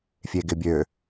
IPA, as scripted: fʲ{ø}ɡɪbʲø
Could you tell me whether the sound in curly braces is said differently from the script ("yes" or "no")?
yes